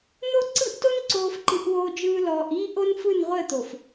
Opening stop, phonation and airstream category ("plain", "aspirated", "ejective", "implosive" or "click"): click